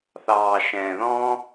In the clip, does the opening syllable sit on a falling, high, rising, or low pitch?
low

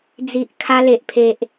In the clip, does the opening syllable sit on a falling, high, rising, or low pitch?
low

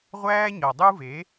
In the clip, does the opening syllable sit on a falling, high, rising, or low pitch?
high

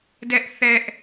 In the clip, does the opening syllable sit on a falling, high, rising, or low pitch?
high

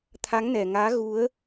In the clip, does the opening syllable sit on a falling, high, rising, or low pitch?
rising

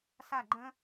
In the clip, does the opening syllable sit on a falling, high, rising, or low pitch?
falling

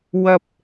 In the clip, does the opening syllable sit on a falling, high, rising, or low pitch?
high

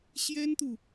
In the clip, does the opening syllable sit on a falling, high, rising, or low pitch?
high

